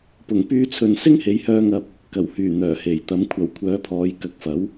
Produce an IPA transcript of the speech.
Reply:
p ʊ˨˩ ŋ p yː˧ t͡sʰ ɵ˨ n s ɪ˥ ŋ h e˨˧ j h œː˧ ŋ ɐ˧ p̚ | k ɐ˨˩ w h yː˨˩ n̪ œː˨˩ h e˨˩ j t̪ ɐ˨˧ m kʷʰ ɐ˨˩ w kʷʰ œː˨˥ pʰ ɔː˨˧ j k ɐ˨˥ k̚ f ɐ˨˥ w

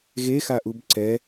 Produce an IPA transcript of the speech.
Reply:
ɣ e x a ʔ u b ǀ ɛ

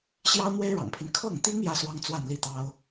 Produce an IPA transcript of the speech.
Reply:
ɕ j ɑ˥ ʊ̯ n̪ w e˥ ɪ̯ ɻ ɑ̰˨˩ ŋ pʰ i˦ n kʰ ɤ˥˩ ŋ t̪ i˥ ŋ j ä˥ s w ɑ˥ ŋ t͡s w a˥˧ n l i˥˩ t̪ ɑ˥ ʊ̯

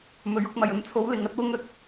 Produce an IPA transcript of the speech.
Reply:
m ɵ˨˧ ɥ ʊ˧ k̚ m ɐ˨ j ɵ˨ n t͡sʰ o˨˧ w l ɪ˨ ŋ ɐ˧ t̚ w ʊ˧ ŋ ɵ˨˥ t̚

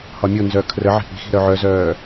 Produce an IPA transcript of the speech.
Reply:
h ɒ mʲ o n z œː kʰ r ə ʕ i̤ ʔ i̤ x i̤ ɾ œ ʕ œ z œː

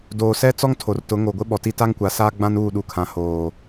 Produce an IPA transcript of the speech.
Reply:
d oː˨ s ɛ˦ t͡s ɔ˦ ŋ tʰ o˨ r t ʊ˨˦ ŋ o˨ ɡʷ ɪ˦ ɓ ɔ˨ t i˦ t a˦ ŋ kʷ a˨ s aː˦ ɡ͡b ã˦ n uː˦˨ ɗ u˨ kʰ ã˨ h oː˨

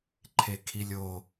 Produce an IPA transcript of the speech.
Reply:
ǃʰ e kʰ i lʲ o

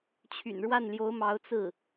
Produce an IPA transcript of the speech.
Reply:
t͡ɕʰ y̰˨˩ n ɻ w a˥˩ n l j o˧˥ ʊ̯ m ɑ˧˥ ʊ̯ t͡s ɹ̩˥˩

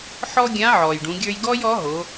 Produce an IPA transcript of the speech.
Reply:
ħ ɔ˥ ɡʲ ã˧˥ ʕ ɔː˩ j ɖ ũ˩˧ ɡʲ ə˞˧ j ɡ ɔː˥ j ɔ˧˥ ɦ o˩˧

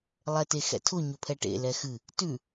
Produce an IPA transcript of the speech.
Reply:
lˠ ɛ t e x ɛ̰ tʰ ʊ ɲ ʊ pʰ ɛ ʈ ḛ l ɛ x ɨ | t ʉ

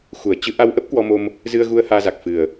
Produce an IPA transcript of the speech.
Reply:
x u˧˩ ə̯ t͡ɕ ɨ˨˦ ʔ a˧ w ʔ ə˦˥ p̚ k w ɔ˧ m o˧ m | z ɨ˧ ə̯ ɣ u˧ ə̯ h aː˧ z a˨˩ k̚ f ɨ˨˩ ə̯

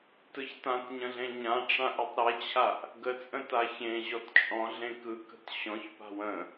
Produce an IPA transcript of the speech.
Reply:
t ɯ ç t ã t ɲ ə̃ ɮ ẽ ɲ ã ʈ͡ʂ ã ʔ ɯ tˤ ɾ ɛ t͡ɕʰ a ʔ | ɡ ə t͡sʼ ə̃ t a ç ẽ ʑ ɔ t t͡ʃʼ ɔ̃ ɮ ẽ k ɯ k ə̤ t ɕ ɔ̃ ç p a̤ w ə̃

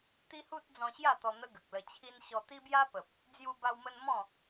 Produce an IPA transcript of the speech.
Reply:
t̪ i˦ h u˦ t̚ d͡z ɔ̃˧ ɕ j a˥˧ t̪ ɔ˧ n̪ ə˦ ɡ ə˨ k̚ l ə˧ t͡ɕʰ i˦ n ɕ ɔ˧ t̪ i˦ b j a˦ p ə˨ p̚ | d͡z j u˧ b a˧ w m ə˧ n m ɔ̃˥˧

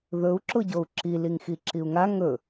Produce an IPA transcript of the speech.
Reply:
ð ɵ u̯ ǁ ʊ ɟ o u̯ ǁ i l i ŋ x i ǁ i u̯ ŋ a ŋ ɵ

